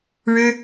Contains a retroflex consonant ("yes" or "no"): yes